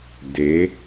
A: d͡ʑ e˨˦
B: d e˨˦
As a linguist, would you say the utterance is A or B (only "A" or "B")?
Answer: B